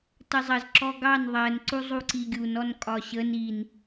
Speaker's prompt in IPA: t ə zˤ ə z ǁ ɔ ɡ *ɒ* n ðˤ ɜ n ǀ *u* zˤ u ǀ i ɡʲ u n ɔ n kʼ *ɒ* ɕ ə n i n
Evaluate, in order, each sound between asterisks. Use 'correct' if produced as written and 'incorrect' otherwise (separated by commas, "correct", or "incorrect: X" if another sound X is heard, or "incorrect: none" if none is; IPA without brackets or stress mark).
incorrect: ɑ, correct, correct